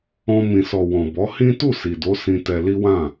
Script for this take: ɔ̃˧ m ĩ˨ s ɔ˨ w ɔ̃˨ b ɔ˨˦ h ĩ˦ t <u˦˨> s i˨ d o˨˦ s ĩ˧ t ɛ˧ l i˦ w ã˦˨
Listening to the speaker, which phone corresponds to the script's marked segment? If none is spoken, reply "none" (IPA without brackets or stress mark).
u˦˨